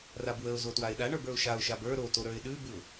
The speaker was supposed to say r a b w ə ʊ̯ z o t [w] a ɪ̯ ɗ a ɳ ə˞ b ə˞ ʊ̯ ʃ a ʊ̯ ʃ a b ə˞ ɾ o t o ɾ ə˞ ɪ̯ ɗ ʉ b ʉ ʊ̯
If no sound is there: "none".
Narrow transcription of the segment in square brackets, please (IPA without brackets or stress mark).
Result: w